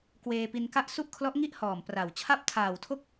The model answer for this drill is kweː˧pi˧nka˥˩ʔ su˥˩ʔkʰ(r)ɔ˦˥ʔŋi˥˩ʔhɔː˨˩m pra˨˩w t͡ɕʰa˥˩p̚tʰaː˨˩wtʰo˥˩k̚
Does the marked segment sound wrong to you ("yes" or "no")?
yes